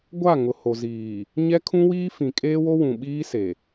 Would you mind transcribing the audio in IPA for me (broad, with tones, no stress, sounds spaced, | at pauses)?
ɡʷ a˦˨ ŋ ʊ˨ h o˨ z iː˨ | ɲ ɛ˦ kʰ ũ˦ w iː˦ f ĩ˨ kʼ eː˦ w o˦ w ũ˨ ɓ iː˦ s e˨